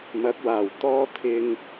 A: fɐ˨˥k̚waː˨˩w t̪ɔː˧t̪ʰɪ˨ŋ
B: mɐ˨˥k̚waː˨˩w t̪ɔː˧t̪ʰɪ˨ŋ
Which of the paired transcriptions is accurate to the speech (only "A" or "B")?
B